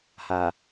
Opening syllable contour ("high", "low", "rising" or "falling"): low